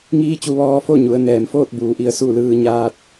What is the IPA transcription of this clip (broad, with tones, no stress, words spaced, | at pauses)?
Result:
ŋiː˧˥ t͡ɕu˧ʋɔː˧fo˥˨ ɲu˩˧ə̯ nɛː˩mfoː˥˨t̚buː˩ ʔi˧ə̯ su˥˨lɯː˧ ɲaː˧t̚